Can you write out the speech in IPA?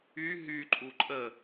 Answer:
y ɦ y ǃʼ u ǃʼ ə

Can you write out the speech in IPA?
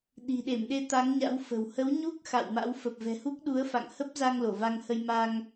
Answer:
ɗ i̤˨˩ ɗ e˧˩ m ɗ e˧ t̪ a˨˦ ŋ ɲ a̰˧˥ w f ə̤˨˩ w h ə˨˦ w ɲ u˦˥ k̚ x a̰˧˨ w m a̰˧˥ w f ə˨˩ p̚ v ɛ̤˨˩ h u˦˥ k̚ ɗ u˨˦ ə̯ f a̰˧˨ ŋ h ə˦˥ p̚ z a˧ ŋ l o˧˩ v a˧ ŋ h ə˧ j m a˧ ŋ

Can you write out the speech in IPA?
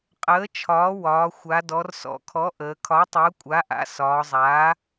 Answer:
qʼ əː˩˥ t͡ʃʰ ɒː˩˥ w ɒː˩˧ xʷ a˩˧ d ɔ˩˧ r s ɔ̰˩˧ kʰ ɔ˩˥ ʔ əː˩˧ kʰ ɒː˩˥ tˤ əː˩˥ kʷʼ a˩˥ ʔ a̰˩˥ s ɒː˩˧ zˤ aː˩˥

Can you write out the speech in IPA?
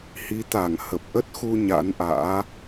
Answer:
h i˨˦ t̪ a˧˩ ŋ h ə˨˩ p̚ ʔ ə˦˥ t̚ x u˧ ɲ a̰˧˥ n ʔ a̰ː˧˥

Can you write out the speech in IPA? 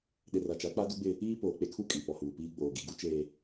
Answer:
ɗ ɪ˨ r a˨ t͡ʃ a˨˦ k͡p a˦ d u˦ ɡ͡b ɪ˦ | iː˦ p oː˨ k͡p e˦ kʰ u˦ kʼ i˨ p ɔ˨ h uː˨ p iː˦ ɡ͡b oː˨ ɡ i˨ ɡ u˦ t͡ʃ eː˨

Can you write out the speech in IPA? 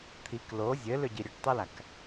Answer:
t̪ʰ i k l o zʲ ɘ l ʏ ɟ i ɾʲ ø ʈ tˤ i l a k

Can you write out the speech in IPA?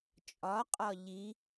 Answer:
t͡ʃʼ ɒ qʼ ɒ ʎ i

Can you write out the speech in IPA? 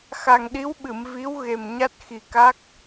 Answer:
x a˨˩ ŋ ɗ i˧˥ w ɓ ɨ˨˩˨ m v i˧˥ w ɣ e˨˩ m ɲ a˦˥ t̚ x i˨˩ k a˦˥ k̚

